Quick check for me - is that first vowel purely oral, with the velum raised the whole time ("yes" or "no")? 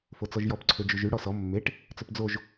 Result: yes